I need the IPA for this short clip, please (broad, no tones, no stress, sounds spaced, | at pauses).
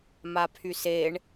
m a pʰ y s e ɳ